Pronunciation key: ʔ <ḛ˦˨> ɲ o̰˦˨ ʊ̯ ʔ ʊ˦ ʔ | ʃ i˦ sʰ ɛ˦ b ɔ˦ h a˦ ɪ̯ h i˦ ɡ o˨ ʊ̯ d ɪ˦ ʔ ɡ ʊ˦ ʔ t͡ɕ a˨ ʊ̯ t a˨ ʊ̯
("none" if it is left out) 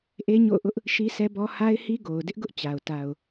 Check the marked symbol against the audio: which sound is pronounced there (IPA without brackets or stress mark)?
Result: e˦